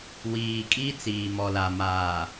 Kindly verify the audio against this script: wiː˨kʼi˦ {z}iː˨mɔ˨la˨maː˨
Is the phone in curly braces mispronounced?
yes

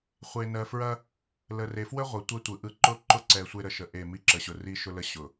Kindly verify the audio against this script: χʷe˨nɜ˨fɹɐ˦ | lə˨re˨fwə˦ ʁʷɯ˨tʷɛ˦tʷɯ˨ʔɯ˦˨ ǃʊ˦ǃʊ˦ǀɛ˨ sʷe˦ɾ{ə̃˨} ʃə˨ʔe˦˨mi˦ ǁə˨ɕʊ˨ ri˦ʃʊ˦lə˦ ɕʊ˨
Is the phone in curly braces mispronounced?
yes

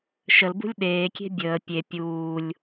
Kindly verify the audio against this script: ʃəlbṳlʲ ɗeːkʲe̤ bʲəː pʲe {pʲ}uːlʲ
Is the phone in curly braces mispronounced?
no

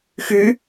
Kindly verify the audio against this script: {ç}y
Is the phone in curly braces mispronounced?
yes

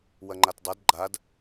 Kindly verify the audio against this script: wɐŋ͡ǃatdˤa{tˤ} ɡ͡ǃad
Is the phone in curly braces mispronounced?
yes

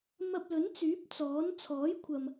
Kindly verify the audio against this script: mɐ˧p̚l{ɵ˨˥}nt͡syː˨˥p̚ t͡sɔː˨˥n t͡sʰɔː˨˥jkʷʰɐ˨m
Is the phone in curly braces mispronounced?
no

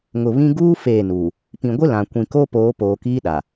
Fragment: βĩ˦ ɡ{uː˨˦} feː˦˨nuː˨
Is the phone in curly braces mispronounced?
yes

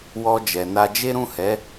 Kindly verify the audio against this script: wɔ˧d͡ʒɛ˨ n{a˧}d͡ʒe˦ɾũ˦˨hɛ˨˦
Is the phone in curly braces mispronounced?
no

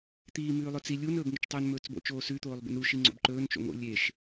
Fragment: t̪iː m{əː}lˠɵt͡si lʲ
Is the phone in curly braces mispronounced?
yes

